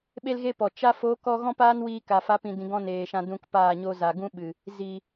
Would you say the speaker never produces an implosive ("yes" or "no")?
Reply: no